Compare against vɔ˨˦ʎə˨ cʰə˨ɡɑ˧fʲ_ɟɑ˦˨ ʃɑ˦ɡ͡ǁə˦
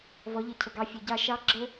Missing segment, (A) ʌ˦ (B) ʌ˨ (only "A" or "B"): B